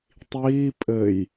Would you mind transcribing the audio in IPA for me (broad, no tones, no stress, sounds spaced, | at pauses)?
tˤ iː pʼ ɘ j